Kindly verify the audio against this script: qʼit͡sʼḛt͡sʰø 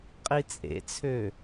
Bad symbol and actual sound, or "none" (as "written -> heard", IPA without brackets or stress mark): none